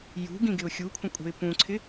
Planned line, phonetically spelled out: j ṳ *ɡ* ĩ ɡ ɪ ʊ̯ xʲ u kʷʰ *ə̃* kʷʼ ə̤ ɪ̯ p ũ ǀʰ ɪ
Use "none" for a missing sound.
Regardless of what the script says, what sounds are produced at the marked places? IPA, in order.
ɡ, ə̃

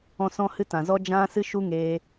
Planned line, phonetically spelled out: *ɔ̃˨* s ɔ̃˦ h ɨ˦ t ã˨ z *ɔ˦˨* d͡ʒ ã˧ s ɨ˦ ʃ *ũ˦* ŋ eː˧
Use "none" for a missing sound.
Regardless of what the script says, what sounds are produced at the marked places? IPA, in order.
ɔ̃˧, ɔ˧, u˦

